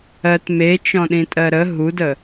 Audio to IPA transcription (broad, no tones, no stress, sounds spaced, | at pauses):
ɜ t m e t͡ʃ ɔ̃ ɗ ĩ tʼ ɜ ɾ ə ɦ u d ə